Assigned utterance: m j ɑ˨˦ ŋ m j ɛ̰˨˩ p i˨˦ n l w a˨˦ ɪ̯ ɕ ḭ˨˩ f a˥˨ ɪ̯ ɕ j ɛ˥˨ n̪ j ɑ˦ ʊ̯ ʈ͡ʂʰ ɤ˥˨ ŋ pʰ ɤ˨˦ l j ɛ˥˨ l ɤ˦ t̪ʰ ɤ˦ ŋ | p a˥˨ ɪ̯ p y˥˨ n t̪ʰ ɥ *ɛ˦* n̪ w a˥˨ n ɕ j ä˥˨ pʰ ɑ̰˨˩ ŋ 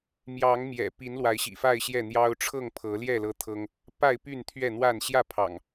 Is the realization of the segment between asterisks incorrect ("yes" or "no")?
yes